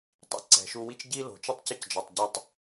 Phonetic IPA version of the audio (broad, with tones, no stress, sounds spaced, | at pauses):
tˤ ḭ˩ ǀ ɛ̤˩ ʃ u˧ w i˥ t͡ʃ ɟ i˥ l o̤˩ t͡ʃ u˥ tˤ c ə˥ c d͡ʒ ɒ˩ tˤ ɟ ʏ˧ tˤ